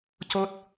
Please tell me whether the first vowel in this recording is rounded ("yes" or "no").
yes